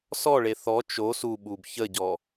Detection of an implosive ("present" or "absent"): present